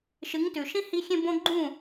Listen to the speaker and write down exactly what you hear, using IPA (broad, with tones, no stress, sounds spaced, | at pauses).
ʃ ɨ˩˥ ŋ t ʉ˩ ʃ ĩ˥ h i˧ xʲ ẽ˧ b õ˧ ɡ͡ǃ ũ˥˩